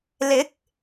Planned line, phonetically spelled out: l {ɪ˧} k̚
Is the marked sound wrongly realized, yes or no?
yes